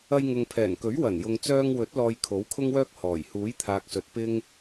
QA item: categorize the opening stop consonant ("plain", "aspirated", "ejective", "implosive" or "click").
aspirated